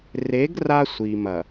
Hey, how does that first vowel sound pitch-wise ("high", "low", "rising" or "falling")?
rising